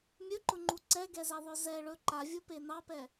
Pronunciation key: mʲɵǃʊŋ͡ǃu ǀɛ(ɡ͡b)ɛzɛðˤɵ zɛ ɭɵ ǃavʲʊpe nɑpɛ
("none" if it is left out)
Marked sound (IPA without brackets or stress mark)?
ɡ